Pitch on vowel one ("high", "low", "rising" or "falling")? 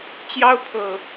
high